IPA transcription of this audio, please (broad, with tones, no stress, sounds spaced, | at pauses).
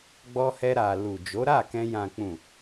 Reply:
ɡ͡b ɔ˧ h ɛ˧ ɾ a˨ l u˨ d͡ʒ o˨˦ ɾ a˦˨ k ɛ̃˧ j ã˨ k͡p ũ˨